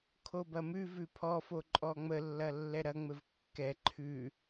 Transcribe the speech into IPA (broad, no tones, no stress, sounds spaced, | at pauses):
kʰ o b ɐ m ʉ v ʉ pʰ ɔ f o ǃʼ ɔ ŋ͡m ə lː ɐ lː ɛ ɾ ɐ ŋ͡m ɘ v kː ɛ ǃʰ ʉ